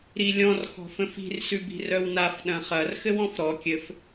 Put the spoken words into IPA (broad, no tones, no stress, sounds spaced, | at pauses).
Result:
ɾ i lʲ ɔ̃ r x ɔ̤ f ə̃ f i̤ r s ʉ b i̤ r œ w n a f ɗ ɐ̃ χ ɐ r x ɘ w ɔ̃ f ɾ ɔ kʲ ɘ f